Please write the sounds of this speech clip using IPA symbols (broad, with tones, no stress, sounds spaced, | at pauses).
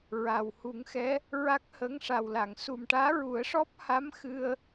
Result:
ɹ a˨˩ w h u˨˩˦ ŋ x ɛ˧˥ | ɹ a˦˥ k̚ h əː˧˥ ŋ ʂ a˨˩ w l a˨˩˨ ŋ s u˨˩ m ʈ aː˧˥ ɹ u˨˩˦ ə̯ ʂ ɔ˦˥ p̚ h a˧˥ m x ɨ˧ ə̯